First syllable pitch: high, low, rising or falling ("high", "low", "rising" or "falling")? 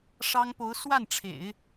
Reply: high